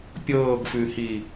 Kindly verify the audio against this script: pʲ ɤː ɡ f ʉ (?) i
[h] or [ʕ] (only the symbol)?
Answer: h